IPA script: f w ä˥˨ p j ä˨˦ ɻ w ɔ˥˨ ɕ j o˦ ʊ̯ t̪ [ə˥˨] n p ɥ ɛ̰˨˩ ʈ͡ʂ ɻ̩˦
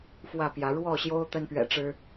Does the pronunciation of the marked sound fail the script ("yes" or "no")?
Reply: yes